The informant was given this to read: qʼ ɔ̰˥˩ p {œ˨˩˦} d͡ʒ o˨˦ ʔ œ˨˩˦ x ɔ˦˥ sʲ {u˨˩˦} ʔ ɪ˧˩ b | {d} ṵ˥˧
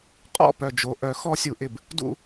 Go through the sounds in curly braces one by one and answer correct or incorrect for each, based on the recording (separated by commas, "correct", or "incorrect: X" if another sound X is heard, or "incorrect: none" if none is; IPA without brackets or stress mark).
incorrect: œ˧˩, correct, correct